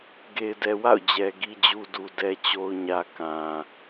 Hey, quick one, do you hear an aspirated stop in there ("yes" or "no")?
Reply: no